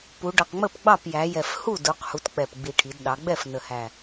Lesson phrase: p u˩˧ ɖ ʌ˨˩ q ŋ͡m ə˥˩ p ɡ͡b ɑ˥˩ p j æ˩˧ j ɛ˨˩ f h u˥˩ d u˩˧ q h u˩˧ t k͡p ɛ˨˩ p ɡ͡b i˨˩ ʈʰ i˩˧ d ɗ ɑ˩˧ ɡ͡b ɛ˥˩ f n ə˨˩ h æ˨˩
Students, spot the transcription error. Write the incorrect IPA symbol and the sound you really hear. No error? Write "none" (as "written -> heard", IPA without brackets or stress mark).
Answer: none